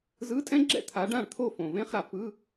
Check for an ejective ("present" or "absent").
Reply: present